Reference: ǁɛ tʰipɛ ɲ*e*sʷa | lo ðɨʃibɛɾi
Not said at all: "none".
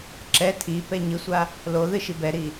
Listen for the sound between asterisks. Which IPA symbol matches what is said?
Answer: ɨ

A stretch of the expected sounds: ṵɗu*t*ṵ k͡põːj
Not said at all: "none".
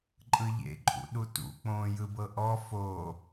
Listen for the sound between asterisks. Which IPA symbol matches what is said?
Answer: t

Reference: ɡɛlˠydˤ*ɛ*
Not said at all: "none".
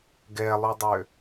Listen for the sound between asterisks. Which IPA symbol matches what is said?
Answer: ø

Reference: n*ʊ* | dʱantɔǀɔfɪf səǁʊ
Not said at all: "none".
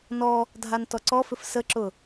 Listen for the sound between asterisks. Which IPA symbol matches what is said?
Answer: ɔ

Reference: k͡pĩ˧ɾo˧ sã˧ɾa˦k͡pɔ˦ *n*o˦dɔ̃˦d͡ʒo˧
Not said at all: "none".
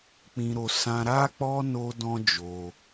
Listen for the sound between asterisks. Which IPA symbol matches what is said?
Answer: n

